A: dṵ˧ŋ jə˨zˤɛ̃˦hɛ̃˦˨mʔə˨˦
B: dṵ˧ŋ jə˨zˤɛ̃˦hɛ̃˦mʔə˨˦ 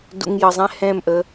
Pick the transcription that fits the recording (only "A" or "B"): A